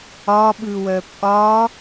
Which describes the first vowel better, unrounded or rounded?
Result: rounded